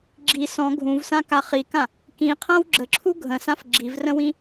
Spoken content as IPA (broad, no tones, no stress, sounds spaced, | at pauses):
ɡ͡ǁ i s ɔ̃ ɡʱ ũ v s ã k a χ i k ã | k ĩ qʰ ã w ɡ͡ǁ ə ǁʰ u ɡʱ ə̃ s ã f ɡ͡ǁ i v r ə̃ w ĩ